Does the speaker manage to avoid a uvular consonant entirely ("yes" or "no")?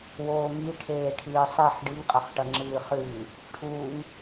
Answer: no